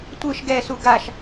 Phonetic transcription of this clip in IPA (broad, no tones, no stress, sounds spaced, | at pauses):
tʷ ɯ ʃ ɡ ɛ s u ɡ a ʃ